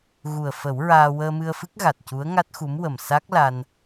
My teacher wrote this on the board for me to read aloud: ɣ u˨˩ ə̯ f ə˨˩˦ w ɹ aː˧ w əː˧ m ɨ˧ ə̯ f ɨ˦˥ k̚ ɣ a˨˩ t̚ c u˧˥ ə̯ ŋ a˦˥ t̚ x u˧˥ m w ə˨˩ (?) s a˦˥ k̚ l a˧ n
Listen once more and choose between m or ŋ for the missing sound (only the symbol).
m